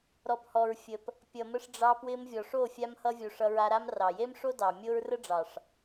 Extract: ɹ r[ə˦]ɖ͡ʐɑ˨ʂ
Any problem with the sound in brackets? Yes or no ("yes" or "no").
no